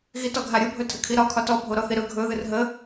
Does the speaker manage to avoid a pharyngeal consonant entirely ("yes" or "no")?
yes